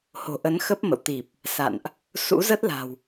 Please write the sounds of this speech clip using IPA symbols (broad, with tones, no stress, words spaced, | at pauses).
ho̤˨˩ʔə˨˦n xə˦˥p̚mə̰˧˨w t̪i˨˩p̚ | sa̰˧˨nʔ | sṵ˧˥zə˦˥t̚la̤˨˩w